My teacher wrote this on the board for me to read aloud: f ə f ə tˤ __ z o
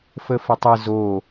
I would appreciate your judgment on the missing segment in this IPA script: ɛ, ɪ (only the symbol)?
ɪ